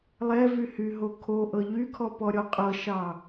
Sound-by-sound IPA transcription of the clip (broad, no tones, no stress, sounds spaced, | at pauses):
lˠ ɛ v y h y ɦ o kʰ o ʔ ɤ ʎ y kʰ ɔ p ɔ ɾʲ ɔ qʼ ɤ ʃ ɑ